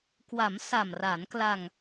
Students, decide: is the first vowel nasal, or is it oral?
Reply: oral